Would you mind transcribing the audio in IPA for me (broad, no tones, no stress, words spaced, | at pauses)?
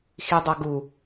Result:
xidˤʌ ɡu